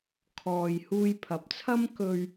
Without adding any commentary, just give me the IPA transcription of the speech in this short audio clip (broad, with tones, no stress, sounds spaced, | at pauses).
kʰ ɔː˨ j h uː˧ j pʰ ɐ˨ p̚ t͡sʰ ɐ˥ m k ɵ˧ ɥ